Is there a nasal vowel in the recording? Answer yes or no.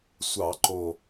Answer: no